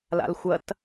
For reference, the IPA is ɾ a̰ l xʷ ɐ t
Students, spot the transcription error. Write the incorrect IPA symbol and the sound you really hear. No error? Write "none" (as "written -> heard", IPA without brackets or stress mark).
ɾ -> l